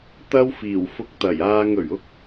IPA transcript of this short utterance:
t̪ɐ˥wfiː˨˩w fʊ˧k̚t̪ɐ˨˩jaː˧ŋɵ˨˩ɥ ʊ˥k̚

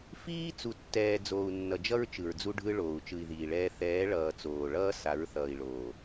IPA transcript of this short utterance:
fiː˦ t͡su˨tːɛː˨ d͡zoː˨u̯nːʌ˨d͡ʒʌ˦ɹ t͡ʃɯ˨ɹd͡zu˦ɖʱɯ˦ ɭoː˨u̯t͡ʃɯ˨i̯ðiː˨ɭɛː˦ θɛː˨˦ɭʌː˨ t͡soː˨ɭʌː˦ sa˨˦ɹθʌː˨i̯ɭoː˨

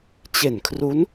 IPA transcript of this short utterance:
t͡ɕe˨˩nkʰru˦˥n

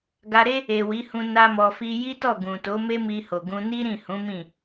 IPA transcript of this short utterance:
ɡa˧ɾe˦ | e˨ wi˨˦hũ˧ na˦mɔ˧fi˦ ji˦tɔ˦˨ɡũ˨to˨˦ me˦mi˧ho˨ ɡũ˧ni˦ɾĩ˦˨hũ˨˦ mĩ˦˨

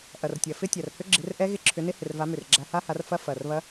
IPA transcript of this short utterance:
ʔɐ˨˩rtʲɐ˨˩ fɪ˦˥ tʲa˨˩rhʏ˦˥ ɡ͡ǁɪ˨˦rʔɛ˦˥ ɣɪ˦˥ǁʰʏ˨˦nɪ˦˥ hɪ˨˩rva˨˦ mʏ˨˩rɡ͡ǁa˨˦ha˦˥ha˨˦r fɐ˦˥ fɐ˨˩rβɐ˦˥

